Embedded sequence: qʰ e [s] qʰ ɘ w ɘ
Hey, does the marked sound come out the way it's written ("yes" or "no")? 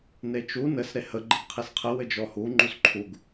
yes